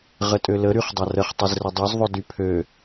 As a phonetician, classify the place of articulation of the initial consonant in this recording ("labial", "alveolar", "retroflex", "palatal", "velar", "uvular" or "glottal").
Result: uvular